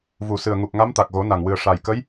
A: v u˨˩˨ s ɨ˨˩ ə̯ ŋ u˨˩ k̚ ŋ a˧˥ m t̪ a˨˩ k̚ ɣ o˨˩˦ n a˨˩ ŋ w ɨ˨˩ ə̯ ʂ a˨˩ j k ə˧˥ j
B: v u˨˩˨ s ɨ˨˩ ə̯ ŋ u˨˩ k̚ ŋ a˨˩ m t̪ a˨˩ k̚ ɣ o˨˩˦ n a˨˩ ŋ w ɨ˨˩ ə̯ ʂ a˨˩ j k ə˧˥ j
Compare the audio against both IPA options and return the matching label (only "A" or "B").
A